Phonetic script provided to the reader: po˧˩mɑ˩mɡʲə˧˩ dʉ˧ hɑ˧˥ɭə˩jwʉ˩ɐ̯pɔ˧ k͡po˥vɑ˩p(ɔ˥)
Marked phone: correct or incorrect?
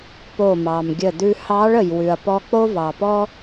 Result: correct